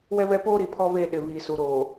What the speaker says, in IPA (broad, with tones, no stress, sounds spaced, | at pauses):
w ɛ˦ β ɛ˦ p oː˦ ɾ i˨ pʰ ɔ˦ β eː˦˨ ɗ ɪ˨ β iː˨ s u˨ ɾ oː˨